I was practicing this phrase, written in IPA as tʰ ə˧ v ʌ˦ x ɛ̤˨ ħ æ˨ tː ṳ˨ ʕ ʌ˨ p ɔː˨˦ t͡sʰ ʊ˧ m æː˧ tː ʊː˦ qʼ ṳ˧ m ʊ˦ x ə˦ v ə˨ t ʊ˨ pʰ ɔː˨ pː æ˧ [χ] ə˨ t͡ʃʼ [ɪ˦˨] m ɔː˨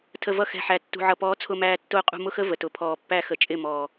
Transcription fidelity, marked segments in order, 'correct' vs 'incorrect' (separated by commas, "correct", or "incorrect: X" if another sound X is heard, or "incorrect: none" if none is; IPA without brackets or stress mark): incorrect: x, correct